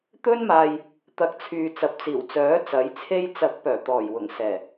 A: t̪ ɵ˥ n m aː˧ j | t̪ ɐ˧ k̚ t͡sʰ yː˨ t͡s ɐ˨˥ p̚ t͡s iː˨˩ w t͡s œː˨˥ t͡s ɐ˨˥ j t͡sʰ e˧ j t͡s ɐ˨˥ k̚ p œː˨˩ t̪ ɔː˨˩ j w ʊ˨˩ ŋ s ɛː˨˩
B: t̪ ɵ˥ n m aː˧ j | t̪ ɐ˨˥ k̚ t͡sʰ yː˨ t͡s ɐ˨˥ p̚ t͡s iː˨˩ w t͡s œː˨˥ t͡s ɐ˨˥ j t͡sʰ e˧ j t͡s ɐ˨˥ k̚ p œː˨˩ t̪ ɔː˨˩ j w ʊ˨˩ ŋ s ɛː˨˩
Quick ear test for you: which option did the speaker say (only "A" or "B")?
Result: B